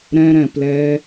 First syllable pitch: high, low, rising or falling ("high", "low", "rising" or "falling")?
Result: high